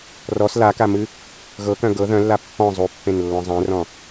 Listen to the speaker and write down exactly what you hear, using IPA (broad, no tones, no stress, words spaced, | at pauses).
rɔs lakamɨ | ɣɤkœ̃ ɡɤ ðœ̃lːa pːɔ̃ zˤupːẽnlːɔ̃ zˤẽrɔ̃